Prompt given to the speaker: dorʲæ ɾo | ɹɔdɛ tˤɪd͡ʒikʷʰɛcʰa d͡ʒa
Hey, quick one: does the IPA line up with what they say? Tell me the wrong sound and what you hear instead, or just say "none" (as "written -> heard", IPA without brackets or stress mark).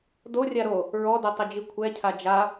æ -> a